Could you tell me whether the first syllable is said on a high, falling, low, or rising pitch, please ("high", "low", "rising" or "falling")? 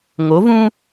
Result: rising